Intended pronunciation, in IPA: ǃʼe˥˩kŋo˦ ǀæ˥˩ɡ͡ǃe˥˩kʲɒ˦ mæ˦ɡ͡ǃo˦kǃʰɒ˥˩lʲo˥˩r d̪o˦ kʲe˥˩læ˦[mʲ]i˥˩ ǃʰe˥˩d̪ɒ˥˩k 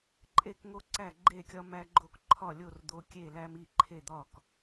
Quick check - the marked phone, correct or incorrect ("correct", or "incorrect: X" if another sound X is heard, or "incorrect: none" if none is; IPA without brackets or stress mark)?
incorrect: m